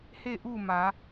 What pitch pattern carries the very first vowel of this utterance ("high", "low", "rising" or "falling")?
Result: falling